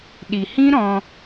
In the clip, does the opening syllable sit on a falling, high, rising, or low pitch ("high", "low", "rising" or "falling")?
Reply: low